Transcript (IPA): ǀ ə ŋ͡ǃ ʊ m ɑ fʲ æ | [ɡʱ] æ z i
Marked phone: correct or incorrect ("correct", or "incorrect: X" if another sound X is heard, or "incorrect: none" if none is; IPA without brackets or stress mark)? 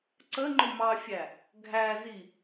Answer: correct